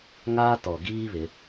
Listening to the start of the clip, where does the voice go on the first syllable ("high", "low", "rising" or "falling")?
high